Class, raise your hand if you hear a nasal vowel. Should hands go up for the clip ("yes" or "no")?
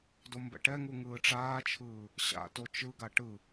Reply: no